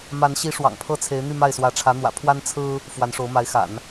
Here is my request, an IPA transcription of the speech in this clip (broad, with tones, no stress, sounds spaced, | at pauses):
m a˧˥ n ɕ i˧˥ ʂ w ɑ̰˨˩ ŋ pʰ ɤ˥˩ t͡sʰ e˧˥ ɪ̯ n̪ y˥˧ m a˥˩ ɪ̯ s w ä˧˥ ʈ͡ʂʰ ä˧˥ n̪ w ä̰˨˩ pʰ w a˥ n t͡sʰ ɹ̩˥ | f w a˧˥ n ʂ o˧˥ ʊ̯ m a˧˥ ɪ̯ x a̰˨˩˦ n